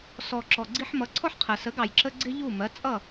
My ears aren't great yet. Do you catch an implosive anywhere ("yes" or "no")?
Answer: no